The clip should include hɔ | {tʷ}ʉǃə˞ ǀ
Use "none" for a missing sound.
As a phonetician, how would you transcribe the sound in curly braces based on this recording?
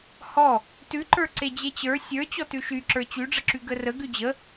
t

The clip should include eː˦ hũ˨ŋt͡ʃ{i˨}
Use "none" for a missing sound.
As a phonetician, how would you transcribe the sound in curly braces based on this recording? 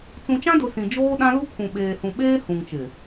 ɪ˨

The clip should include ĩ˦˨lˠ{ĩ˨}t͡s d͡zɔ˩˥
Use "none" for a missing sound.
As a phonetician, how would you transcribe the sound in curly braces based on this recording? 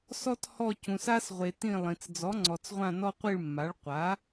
ĩ˨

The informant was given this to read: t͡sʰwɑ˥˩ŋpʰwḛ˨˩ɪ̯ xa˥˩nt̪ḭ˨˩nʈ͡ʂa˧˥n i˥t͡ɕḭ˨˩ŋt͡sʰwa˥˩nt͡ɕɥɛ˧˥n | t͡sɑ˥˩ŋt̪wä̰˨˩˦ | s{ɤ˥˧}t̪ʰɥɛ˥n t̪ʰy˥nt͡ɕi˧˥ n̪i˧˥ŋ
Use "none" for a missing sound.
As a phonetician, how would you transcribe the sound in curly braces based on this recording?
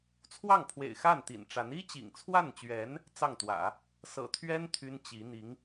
ɤ̰˨˩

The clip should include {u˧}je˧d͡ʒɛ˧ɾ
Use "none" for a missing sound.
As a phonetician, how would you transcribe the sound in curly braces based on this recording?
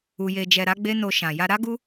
u˧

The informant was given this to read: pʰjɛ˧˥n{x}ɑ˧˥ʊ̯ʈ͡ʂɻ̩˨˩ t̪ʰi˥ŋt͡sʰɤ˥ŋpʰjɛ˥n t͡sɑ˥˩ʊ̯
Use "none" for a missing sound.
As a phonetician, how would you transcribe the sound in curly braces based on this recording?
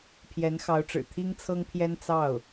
x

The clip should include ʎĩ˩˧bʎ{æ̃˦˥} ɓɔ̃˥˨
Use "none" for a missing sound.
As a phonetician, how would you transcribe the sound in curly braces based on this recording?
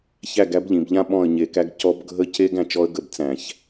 ã˦˥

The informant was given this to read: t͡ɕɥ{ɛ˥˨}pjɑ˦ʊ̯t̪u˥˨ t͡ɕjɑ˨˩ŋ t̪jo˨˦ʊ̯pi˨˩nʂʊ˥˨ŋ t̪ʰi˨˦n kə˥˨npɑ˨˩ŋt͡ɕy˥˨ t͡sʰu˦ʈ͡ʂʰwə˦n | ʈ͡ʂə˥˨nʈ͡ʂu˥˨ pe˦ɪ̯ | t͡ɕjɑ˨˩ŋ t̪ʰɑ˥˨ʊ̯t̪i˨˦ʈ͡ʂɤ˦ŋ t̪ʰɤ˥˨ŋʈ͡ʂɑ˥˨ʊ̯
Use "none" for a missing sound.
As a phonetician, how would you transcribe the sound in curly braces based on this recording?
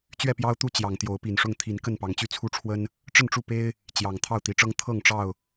ɛ˥˨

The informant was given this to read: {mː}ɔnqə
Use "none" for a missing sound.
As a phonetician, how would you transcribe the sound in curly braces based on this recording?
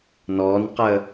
n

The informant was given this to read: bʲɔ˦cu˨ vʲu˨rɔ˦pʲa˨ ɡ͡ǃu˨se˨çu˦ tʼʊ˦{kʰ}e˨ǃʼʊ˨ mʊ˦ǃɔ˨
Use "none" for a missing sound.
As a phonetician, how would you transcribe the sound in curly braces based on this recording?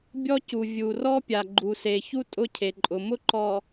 cʰ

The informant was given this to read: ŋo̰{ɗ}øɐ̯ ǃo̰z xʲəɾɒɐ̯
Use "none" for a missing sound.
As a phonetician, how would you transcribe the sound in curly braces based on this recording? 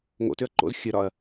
t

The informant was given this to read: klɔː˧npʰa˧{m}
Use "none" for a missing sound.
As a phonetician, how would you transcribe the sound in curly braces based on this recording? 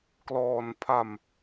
m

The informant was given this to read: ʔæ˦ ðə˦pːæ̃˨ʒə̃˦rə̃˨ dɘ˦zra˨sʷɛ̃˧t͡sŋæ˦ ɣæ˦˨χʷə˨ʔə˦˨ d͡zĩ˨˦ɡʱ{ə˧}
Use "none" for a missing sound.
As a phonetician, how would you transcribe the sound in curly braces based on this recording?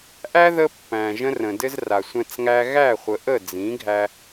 æ˧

